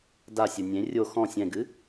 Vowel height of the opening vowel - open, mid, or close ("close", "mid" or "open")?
open